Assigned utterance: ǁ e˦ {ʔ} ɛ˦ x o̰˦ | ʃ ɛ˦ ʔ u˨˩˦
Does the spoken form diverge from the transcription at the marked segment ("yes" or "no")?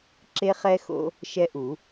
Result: yes